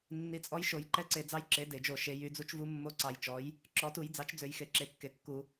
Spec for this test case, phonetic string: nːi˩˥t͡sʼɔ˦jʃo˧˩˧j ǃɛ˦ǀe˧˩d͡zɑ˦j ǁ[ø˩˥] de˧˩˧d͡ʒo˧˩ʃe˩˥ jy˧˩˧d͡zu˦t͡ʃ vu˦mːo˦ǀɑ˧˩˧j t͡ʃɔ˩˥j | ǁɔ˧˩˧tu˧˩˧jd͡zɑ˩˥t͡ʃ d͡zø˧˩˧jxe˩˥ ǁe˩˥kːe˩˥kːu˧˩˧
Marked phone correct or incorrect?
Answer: incorrect